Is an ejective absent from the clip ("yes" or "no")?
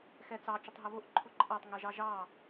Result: no